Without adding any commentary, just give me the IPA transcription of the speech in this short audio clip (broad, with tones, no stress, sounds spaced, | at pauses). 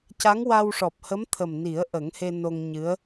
c a˧˥ ŋ w a˧ w ʂ ɔ˨˩ p̚ h ə˧˥ m t̪ʰ ə˨˩ m n i˨˩˦ ə̯ ʔ ə˨˩˦ ŋ h e˧ n o˧ ŋ ɲ ɨ˧˥ ə̯